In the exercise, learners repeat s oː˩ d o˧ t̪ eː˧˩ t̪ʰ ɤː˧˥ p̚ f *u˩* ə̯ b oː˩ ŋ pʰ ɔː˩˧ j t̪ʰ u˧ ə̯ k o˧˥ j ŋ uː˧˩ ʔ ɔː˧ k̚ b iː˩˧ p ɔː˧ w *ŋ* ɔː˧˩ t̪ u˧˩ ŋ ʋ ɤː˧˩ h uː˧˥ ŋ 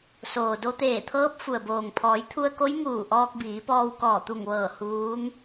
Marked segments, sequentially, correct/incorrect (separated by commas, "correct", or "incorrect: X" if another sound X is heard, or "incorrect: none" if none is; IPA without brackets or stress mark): correct, incorrect: k